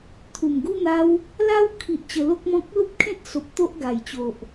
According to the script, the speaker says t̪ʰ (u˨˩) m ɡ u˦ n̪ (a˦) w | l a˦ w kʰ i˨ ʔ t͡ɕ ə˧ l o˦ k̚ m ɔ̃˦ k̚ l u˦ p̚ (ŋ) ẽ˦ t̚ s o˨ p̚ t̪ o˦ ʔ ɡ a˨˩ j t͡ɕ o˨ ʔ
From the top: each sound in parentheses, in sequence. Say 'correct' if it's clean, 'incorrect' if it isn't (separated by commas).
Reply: correct, correct, incorrect